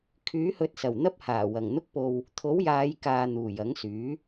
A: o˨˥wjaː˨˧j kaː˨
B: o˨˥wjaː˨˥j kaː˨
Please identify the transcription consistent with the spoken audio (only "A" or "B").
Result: A